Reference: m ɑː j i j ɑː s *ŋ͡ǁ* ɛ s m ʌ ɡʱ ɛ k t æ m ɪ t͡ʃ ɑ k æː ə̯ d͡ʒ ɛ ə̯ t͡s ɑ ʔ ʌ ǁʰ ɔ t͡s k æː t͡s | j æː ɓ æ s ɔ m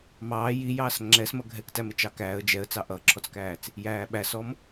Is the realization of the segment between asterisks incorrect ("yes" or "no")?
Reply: no